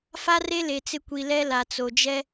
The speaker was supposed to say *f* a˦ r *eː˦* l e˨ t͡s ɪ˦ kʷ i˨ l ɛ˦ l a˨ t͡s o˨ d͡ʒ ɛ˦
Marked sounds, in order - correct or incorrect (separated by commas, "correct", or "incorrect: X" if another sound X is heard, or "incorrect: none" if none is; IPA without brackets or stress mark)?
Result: correct, incorrect: e˦